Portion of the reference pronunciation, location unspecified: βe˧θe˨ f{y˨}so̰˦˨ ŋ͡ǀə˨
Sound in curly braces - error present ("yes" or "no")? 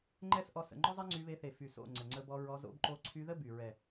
no